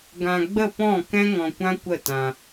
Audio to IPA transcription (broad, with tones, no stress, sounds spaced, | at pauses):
ɡ ã˧ ɡ͡b ə˦˨ p ɔ̃˦˨ k ɛ̃˦ ŋ ɔ̃˧ kʷ ã˦ kʷ ə˦˨ t ã˧